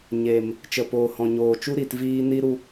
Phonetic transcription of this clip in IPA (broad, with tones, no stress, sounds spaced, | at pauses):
ɲ e˨ m | t͡ʃ ə˨ p oː˨ h ɔ̃˨ ɲ oː˨ t͡ʃ u˦ ɾ i˨ t v iː˦ n i˦ ɾ u˧